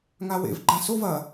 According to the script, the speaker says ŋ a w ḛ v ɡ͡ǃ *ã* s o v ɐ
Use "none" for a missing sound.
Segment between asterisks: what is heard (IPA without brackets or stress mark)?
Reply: ã